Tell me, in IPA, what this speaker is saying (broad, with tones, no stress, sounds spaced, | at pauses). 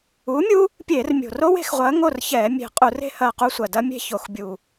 uː˨˥ mʲ u˦˥ | pʲ eː˧˩˧ r mʲ o̤˨˩ r o˦˥ w e̤˧˩˧ x ʁʷ ɐː˨˥ ŋ o˥˨ r ç ɛː˧˩˧ mʲ e̤˧˩˧ qʼ u˧˩˧ r e̤˦˥ h ɐː˧ q u˧ sʷ ɐ˨˩ d ɐ˦˥ mʲ e̤˥˨ ç o˧˩˧ x bʲ u˨˩